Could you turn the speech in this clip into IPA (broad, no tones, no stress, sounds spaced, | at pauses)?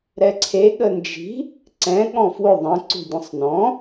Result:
ɾ ɛ ǀʰ e ɠ ə n d͡ʒ i̤ | ǀ ɛ̃ ɠ ɔ̃ f w ʊ ðˤ ə̃ ǀ ṳ dʲ ə̃ sˤ n ɔ̃